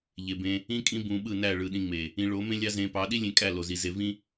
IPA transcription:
ʎe˨bẽ˧ | ĩ˦kʼĩ˦ bũ˧ɓɯ˦˨næ˦˨ ɭɯ˨ɗĩ˧ŋ͡me˨ | ĩ˧ɭo˨˦mẽ˦lʲɑ˦ zẽ˧pɑ˨˦ ɗi˦lʲẽ˧ kʼæ˦˨lo˨zi˨ze˧ vĩ˦

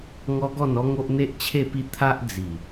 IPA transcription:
ŋɔ˦ɡɔ˥˧nɔ˦ŋo˦ʔ n̪e˦ʔt͡ɕʰe˥˧pi˥˧ t̪ʰa˦ʔd͡zi˨˩

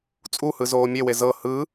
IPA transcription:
t͡sʼuhɯ zoːmʲewe zɤ hɯ

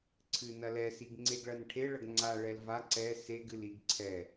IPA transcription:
ǀʰɨnɐlɛ siɡŋ͡ǀeɡɭɐnʈʰe ɭɐɡŋ͡ǀa ɭɛlva ǀɛ seɡ ɨliɡǀʰɛ

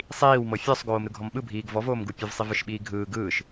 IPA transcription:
sˤiːwmɤ fʲɔsˤɡoːm ɾɯɡʱɔmɓɯbʱiːɡ vɔvoːmɡu pʲɯvsˤivɯʃ ɓiːɡʱɯː ɡɯːʃ

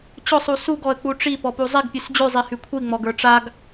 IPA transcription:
t͡ɕʊsˤu suɡɔə̯k͡pu ʈ͡ʂi pɔpuzˤiɡpʲʉs d͡ʑʉzˤi hykʷʰiŋ͡mɔɡə˞ ʈ͡ʂaɡ

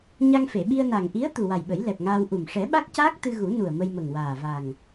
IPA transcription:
ɲa˧ŋfe˨˩˨ɓi˧ə̯na˨˩ŋ ʔi˧˥ə̯ t̪u˨˩wa˨˩jɓə˨˩˦j lɛ˨˩p̚ŋaː˧w ʔu˨˩m ʂɛ˨˩˦ɓa˦˥k̚caː˦˥k̚ t̪ɨ˧ɣu˨˩˦ nu˨˩ə̯ mə˧jmə˨˩ŋwaː˨˩ va˨˩ŋ

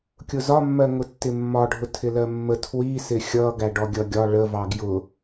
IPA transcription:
kʲʊzɒmːɜŋʊ tːɪmːɒɖʱʊ tʰɪlɜmːə tʰwi sɪxʲʌ ɡæɖɔɡʲʌɡʲɒ ɭəvɑ ɡjʊ

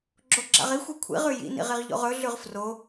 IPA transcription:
ɡ͡ǁoɡ͡ǁa̰ʁixʷi kʷʰḭʁʉ jḭnḭʁ iʁʎo̰ʁɵɮʉʁ fro

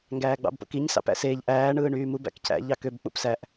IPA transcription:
ŋɡæːɡ͡bɑ̰bpo̰kiɲ sɑ̰pæ̰seːʎ ʔæː ɳɯːɳyːmub æ̰kcʰæ̰ ʎɑkøb k͡pṵpsæʔ

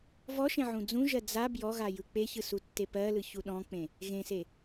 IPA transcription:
vɔʃẽ ʕũd͡zũʒɜ d͡za bjɔɣa jɯk͡peçɯ sutːepɜlɯ çuɗɔ̃k͡pẽ | ɣẽse

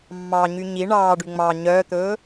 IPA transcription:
mːɑɲy ɲi ɳɑːɖy ŋ͡mɑ ɲœt̪ɵː

